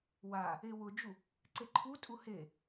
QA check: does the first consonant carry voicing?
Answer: yes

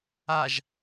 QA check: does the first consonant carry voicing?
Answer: yes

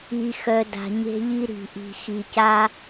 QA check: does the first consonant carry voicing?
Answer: no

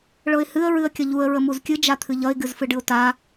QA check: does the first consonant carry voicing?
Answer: yes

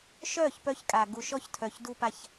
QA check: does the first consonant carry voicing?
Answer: no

